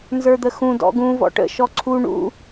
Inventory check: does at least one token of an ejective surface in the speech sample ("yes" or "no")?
no